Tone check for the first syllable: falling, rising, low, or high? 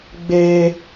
high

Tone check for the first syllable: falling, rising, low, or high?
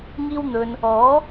high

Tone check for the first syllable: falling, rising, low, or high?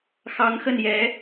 rising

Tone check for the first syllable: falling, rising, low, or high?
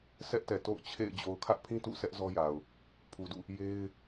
high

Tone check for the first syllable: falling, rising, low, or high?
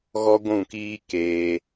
high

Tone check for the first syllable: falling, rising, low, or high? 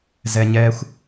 low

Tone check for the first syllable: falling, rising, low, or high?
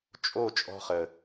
falling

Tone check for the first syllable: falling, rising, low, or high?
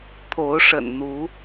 rising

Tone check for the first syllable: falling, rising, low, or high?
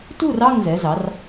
falling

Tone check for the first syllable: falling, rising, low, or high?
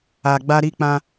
low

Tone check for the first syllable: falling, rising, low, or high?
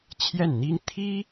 falling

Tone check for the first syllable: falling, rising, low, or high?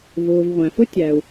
low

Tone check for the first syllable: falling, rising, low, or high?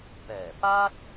low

